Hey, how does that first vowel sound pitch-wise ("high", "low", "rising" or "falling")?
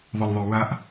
low